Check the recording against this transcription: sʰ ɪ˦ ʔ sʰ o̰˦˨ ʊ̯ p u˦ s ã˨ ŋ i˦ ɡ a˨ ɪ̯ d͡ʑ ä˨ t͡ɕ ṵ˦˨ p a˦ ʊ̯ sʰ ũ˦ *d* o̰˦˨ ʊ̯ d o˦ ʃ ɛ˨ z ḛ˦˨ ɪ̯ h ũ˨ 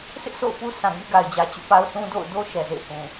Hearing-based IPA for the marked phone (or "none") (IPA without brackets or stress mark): d